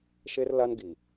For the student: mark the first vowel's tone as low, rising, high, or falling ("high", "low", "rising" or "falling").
high